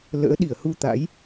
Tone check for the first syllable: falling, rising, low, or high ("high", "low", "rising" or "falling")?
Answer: rising